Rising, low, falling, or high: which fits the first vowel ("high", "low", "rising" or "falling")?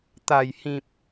low